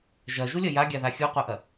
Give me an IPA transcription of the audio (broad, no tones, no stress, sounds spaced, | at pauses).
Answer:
ʒ ɐ ʒ u lʲ ɐ j a ɡʲ a ð a xʲ u qʷ a ʔ ɐ